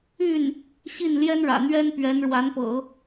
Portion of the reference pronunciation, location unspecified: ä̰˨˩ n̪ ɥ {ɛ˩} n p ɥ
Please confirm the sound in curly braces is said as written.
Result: no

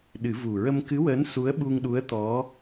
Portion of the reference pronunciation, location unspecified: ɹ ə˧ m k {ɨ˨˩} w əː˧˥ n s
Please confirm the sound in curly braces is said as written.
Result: no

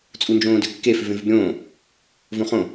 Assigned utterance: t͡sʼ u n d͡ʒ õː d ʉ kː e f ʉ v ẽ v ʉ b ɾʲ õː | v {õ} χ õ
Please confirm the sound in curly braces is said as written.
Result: yes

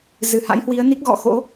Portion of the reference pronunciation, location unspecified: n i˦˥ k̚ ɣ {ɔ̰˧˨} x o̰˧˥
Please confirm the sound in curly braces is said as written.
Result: yes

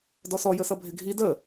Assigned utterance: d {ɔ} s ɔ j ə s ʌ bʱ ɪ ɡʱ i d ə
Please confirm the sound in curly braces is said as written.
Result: yes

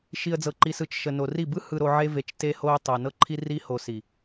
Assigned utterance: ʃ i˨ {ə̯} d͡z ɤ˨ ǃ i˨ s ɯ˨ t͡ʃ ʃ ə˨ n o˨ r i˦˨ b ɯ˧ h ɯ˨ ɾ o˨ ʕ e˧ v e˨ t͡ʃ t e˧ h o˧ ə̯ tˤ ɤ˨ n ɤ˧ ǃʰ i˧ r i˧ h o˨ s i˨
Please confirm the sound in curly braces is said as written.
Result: yes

